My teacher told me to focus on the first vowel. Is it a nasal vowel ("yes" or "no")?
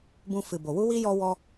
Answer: yes